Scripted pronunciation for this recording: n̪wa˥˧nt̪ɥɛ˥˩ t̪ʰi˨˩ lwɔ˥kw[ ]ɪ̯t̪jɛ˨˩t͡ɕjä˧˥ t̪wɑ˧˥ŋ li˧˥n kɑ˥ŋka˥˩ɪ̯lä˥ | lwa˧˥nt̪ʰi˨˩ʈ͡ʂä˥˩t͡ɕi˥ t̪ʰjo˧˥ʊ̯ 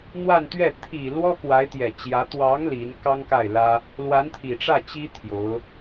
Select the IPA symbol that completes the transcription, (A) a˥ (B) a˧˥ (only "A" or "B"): B